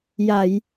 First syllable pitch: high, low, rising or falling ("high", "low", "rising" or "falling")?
low